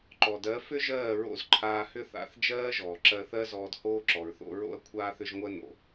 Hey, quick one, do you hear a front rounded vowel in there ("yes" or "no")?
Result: yes